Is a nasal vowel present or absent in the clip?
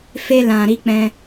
present